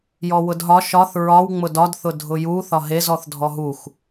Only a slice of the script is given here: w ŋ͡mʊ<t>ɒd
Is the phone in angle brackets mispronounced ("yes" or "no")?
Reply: yes